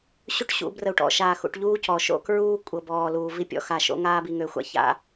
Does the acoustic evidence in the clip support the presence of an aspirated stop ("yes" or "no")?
no